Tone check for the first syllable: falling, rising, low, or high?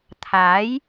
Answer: rising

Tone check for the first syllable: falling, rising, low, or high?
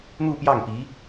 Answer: falling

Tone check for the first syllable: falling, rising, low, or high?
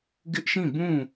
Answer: high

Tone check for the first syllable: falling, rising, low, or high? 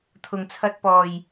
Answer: low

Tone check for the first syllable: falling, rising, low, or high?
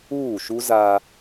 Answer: falling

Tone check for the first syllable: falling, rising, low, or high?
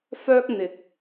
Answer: high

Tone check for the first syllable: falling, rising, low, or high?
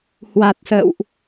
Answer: low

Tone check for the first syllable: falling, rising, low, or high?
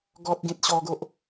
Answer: high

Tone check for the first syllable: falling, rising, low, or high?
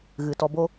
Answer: low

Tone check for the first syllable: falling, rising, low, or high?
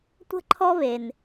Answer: high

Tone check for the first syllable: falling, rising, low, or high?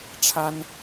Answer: high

